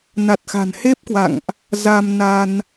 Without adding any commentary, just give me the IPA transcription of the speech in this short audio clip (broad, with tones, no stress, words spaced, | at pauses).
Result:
na˨˩t̚xa̤˨˩nhe˦˥p̚kwa̰˧˨ŋʔ | za˧m na˧n